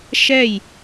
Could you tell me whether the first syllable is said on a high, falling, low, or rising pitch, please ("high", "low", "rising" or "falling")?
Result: falling